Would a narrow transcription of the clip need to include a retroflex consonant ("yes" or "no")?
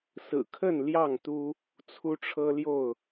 yes